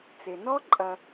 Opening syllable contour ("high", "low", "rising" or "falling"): low